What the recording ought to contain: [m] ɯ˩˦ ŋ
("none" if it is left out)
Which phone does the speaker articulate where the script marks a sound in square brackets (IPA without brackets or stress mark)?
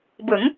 b